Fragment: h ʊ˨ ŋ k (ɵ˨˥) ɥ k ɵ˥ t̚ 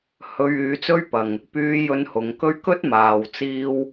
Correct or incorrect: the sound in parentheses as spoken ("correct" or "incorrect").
incorrect